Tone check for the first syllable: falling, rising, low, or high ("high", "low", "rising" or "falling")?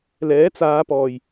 rising